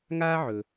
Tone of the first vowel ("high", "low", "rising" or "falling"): high